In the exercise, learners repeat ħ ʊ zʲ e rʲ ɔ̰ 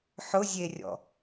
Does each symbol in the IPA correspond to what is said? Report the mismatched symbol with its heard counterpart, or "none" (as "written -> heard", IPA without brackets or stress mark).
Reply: none